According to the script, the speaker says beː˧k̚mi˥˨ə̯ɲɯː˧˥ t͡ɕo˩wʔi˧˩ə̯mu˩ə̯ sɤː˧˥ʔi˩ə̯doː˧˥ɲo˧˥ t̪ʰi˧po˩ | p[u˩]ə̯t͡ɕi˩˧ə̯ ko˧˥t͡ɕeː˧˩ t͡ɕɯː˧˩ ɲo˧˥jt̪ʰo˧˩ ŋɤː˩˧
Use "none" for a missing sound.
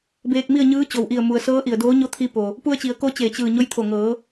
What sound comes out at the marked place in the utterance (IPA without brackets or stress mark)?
u˧